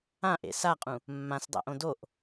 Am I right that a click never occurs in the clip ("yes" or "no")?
yes